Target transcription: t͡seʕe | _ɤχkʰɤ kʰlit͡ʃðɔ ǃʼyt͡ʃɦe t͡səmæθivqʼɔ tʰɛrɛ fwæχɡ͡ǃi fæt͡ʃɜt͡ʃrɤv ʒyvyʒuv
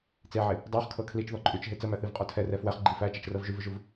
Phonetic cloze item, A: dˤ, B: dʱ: A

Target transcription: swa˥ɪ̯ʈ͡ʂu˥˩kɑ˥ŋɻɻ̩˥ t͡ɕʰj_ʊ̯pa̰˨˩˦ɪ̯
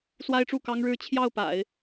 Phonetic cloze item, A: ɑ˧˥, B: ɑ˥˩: B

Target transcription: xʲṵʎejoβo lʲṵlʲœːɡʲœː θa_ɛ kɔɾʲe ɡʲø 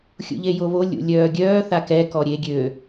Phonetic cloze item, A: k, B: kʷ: A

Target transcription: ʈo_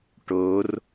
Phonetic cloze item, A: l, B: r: B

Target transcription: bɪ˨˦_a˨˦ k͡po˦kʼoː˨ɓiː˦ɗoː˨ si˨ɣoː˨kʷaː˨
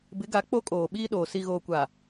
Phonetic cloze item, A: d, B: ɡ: B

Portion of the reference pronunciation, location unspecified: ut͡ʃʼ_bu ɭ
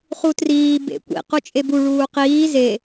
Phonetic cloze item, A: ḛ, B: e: B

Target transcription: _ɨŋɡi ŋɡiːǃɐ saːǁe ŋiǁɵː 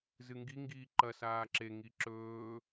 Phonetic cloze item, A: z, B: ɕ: A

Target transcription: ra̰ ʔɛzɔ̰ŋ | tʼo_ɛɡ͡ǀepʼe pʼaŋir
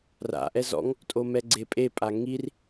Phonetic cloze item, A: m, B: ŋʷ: A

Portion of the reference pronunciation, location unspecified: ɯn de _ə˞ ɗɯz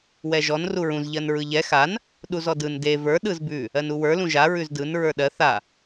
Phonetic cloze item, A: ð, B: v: B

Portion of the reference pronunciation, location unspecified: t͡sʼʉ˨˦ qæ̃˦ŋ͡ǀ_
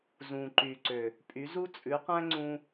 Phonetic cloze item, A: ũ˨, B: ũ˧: B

